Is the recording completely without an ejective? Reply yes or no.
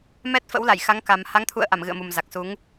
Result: yes